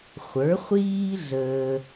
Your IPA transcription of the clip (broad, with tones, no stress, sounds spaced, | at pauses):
χʷ ə˞˩˥ χʷ iː˥ ɮ əː˧